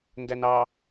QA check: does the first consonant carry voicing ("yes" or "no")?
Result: yes